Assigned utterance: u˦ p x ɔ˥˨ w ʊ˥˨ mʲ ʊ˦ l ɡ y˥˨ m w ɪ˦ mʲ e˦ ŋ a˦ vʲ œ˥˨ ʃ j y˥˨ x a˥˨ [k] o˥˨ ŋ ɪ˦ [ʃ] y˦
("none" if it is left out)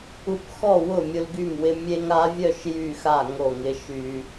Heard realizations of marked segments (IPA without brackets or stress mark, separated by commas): ŋ, ʃ